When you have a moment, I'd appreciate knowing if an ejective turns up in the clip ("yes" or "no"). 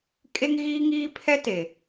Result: yes